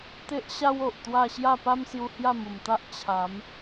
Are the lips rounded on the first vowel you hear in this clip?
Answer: no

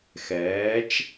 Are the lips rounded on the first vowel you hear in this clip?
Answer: no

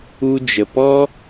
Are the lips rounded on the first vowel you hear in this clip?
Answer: yes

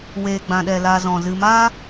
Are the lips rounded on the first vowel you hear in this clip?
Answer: no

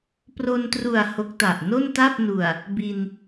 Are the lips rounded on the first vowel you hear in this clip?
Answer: yes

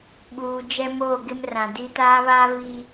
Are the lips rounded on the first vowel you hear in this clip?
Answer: yes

